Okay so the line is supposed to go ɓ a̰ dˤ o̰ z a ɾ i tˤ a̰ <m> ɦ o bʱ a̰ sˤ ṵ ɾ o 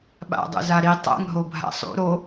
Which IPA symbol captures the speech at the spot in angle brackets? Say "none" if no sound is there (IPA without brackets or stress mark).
ŋ